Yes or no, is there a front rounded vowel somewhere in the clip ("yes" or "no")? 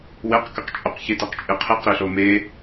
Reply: yes